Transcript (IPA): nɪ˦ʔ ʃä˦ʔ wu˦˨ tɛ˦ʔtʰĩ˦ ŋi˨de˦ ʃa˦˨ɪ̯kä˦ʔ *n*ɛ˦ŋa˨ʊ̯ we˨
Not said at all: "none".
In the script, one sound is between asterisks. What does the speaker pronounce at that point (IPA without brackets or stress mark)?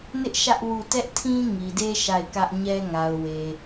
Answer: ɲ